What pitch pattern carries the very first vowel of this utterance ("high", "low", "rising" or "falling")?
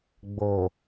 low